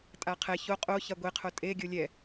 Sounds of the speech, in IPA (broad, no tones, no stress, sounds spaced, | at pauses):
tʼ a qʰ ɛ ç o qʼ o ç a ɡʷ e qʰ o tʼ e ɡʲ o lʲ ɛ